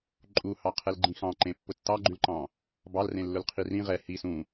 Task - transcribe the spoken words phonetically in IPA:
ǃʼ u h ɑ qʰ ɛ l ɡ͡ǃ ĩ x ɑ̃ ǃ ẽ pː ʊ tː ɑ ɡ͡ǃ ʉ l ǃ ɑ̃ | b ɑ l r ẽ lː ʊ l qʰ i r ĩ ʁ ɛ h i s ũ

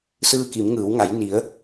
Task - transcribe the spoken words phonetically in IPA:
s ɯː˧ k i˩˧ m ŋ ɯː˩˧ w ŋ a˩˧ j n i˩˧ ə̯

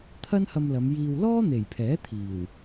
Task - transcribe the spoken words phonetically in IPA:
t̪ʰ ɐ˥ n h ɐ˧ m l ɐ˨˧ m j iː˧ w l ɔː˥ n̪ e˨˩ j pʰ ɛː˨˥ t̪ʰ iː˨˩ w

